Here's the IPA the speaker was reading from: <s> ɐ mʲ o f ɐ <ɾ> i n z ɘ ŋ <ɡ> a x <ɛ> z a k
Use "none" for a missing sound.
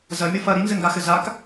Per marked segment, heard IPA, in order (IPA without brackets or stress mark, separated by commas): z, ɾ, ɡ, ɘ